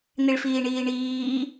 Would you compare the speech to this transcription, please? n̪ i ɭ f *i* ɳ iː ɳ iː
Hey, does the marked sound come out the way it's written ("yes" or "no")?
no